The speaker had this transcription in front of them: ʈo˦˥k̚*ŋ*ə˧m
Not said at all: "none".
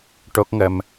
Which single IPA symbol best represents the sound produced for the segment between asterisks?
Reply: ŋ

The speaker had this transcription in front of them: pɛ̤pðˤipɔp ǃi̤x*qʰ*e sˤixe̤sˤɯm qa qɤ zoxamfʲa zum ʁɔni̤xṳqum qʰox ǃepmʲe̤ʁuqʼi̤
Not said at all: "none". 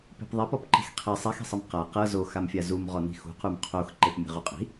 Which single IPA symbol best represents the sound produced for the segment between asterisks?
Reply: qʰ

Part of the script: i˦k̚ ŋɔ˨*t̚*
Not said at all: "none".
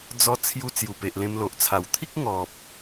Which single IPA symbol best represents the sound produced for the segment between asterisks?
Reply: p̚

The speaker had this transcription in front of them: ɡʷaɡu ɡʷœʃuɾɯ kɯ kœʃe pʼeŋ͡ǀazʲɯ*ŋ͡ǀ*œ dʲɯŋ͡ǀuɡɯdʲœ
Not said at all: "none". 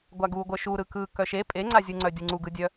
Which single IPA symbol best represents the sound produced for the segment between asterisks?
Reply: ŋ͡ǀ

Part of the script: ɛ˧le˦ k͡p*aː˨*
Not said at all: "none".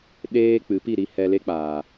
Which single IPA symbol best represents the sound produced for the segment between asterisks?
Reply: aː˨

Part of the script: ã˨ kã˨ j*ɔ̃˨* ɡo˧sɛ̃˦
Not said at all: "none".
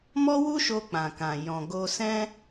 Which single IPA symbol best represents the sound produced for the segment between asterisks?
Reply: ɔ̃˨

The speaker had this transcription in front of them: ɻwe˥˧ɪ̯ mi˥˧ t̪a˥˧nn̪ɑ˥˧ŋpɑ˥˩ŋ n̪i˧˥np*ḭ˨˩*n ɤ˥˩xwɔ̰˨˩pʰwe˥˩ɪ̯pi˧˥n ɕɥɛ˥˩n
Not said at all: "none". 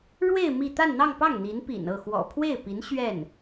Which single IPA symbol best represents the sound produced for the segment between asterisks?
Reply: ḭ˨˩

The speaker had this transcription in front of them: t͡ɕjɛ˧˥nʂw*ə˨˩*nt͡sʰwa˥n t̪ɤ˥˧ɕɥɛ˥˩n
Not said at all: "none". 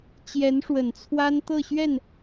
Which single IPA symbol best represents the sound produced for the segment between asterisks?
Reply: ə˨˩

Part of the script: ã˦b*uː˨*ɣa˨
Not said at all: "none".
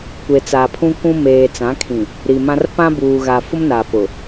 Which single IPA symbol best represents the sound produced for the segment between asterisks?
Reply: uː˨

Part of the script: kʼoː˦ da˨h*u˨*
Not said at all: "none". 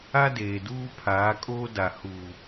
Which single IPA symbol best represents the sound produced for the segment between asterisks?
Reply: uː˨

